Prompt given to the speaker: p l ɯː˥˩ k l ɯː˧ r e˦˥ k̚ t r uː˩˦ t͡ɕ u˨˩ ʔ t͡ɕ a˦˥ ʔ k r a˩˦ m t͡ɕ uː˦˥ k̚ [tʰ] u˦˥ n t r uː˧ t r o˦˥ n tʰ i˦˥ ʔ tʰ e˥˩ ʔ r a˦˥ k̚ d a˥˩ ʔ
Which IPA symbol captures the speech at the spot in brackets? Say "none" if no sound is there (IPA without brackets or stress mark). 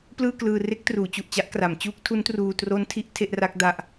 tʰ